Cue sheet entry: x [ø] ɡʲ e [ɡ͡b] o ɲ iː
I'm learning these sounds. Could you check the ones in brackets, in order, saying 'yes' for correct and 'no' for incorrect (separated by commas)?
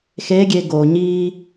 no, no